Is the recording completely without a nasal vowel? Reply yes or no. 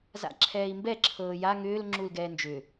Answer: yes